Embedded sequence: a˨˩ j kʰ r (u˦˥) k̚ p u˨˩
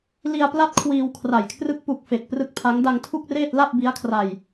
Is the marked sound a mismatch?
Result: yes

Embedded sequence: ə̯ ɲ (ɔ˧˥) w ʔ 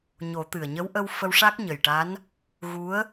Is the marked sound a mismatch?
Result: yes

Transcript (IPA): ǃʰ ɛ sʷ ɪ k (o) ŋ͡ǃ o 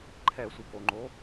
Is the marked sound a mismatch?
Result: no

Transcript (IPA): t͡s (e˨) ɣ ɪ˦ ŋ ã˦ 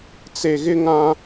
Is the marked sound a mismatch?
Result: no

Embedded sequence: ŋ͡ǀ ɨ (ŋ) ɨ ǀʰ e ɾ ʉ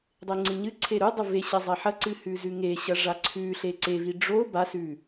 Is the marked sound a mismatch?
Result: yes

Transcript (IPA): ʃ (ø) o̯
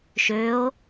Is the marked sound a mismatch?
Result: no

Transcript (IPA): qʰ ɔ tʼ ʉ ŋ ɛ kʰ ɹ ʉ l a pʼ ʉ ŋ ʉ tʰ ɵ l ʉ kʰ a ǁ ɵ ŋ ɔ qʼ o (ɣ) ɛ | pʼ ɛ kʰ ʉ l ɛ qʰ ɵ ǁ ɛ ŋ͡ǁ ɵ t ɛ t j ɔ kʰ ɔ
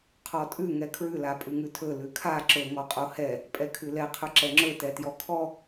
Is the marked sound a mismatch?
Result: yes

